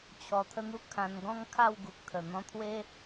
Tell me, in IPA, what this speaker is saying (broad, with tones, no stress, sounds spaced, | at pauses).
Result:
t͡ɕʰ ɔ˧ t̪ʰ ə˥˧ n̪ u˦ kʰ ã˧ n ɡ ɔ̃˦ ŋ kʰ a˥˧ w ɡ u˨ k̚ t̪ʰ ə˨˩ n̪ ɔ̃˧ t̪ʰ w e˦